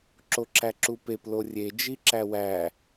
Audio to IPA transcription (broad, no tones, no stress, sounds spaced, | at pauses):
ǁ o ǁ æ ǁ u p e p l o rʲ e d͡ʒ i ǁ æ w æ